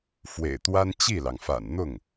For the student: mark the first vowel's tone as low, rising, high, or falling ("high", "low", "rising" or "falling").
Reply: low